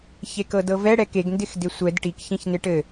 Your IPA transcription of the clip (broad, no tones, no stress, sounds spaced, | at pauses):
ç e k ɤ d ɤ v ɛ ɽ ɛ k e ɡ n d ɪ x d ɪ sʷ ɛ d ʈ i k ç ĩ ç n ɪ ʈ ɘ